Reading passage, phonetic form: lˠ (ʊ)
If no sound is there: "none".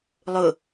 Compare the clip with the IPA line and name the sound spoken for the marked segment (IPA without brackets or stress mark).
ʊ